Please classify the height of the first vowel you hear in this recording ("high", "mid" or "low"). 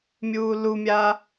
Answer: high